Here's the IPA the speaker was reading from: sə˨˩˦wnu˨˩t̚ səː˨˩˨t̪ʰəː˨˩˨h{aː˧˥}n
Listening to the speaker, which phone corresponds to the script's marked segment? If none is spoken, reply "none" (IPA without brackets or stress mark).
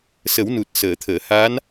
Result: aː˧˥